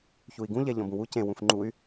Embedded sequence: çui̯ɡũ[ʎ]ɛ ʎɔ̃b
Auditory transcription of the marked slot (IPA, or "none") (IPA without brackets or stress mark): ʎ